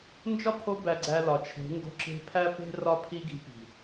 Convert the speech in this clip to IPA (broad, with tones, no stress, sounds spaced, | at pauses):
n d͡ʒ ɒ˦ pʰ o˧ b æ˨ ɡ͡ǀ æ˧ l ɒ˨ t͡ʃʰ e̤˨˦ ŋ ɡ o̤˧ ǁ e̤˧ pʰ æ˦ p e̤˦ r ɒ˦ pʰ i˦ ɡ i̤˧ p i̤˨